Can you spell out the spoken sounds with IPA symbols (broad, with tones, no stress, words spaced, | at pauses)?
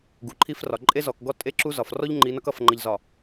ɡu˨ǃʰi˦frɒ˨ ǃʼe˦zɔ˨kɡɔ˦ tʼe˦ǁu˦zɒ˨f rɔ˦ʎ ŋ͡ǃi˨˦nʌ˦k ʌ˨f ŋ͡ǃʌ˨ʎzɒ˨